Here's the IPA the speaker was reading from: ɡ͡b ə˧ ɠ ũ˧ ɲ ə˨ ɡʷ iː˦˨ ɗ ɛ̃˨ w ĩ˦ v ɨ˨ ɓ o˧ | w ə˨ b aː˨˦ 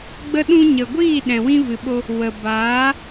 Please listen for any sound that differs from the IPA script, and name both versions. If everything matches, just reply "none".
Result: ɠ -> ɗ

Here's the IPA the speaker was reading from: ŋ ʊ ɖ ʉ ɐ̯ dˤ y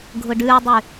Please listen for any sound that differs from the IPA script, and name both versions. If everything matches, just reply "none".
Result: ŋ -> ɡʱ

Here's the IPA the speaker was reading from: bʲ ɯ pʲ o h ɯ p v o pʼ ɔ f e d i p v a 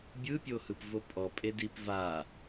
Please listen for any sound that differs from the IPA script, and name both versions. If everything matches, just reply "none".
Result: f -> pʼ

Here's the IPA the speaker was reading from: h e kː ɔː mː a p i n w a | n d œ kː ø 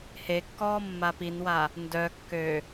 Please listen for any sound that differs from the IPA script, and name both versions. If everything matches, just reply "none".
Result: none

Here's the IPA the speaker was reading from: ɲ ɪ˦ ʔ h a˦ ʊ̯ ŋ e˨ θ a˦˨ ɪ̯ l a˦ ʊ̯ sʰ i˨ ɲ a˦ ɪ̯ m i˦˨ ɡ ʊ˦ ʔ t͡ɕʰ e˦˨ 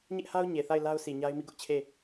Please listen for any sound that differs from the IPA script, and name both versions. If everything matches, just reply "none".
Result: ŋ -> ɲ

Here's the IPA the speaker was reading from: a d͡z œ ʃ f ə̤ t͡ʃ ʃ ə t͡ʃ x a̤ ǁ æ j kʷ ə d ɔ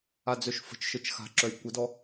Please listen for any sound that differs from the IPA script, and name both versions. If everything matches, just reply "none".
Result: æ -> œ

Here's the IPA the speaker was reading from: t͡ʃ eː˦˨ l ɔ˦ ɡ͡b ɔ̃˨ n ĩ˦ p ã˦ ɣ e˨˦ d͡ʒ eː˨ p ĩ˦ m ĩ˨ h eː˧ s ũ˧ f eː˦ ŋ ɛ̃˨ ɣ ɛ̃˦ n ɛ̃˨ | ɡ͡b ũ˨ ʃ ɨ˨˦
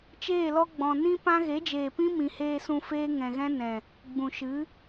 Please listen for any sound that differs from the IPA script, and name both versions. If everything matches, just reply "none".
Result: none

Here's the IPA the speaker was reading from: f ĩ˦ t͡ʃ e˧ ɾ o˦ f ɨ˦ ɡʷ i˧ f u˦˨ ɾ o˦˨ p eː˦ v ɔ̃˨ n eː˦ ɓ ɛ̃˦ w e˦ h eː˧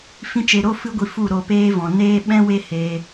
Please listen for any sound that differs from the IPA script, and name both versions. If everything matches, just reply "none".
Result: none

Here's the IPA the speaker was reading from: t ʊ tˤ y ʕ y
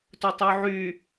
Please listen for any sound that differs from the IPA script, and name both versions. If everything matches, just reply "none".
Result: none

